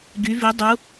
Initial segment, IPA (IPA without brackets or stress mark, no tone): ɡ